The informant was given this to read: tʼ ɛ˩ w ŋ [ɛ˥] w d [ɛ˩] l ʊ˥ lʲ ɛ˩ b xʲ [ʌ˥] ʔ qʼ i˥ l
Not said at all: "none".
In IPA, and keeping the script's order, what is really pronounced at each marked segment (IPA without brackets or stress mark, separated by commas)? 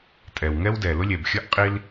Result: ɛ˥, ɛ˩, ʌ˥